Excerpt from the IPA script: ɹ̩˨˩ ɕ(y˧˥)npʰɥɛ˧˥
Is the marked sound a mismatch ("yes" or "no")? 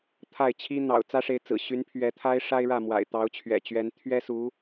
no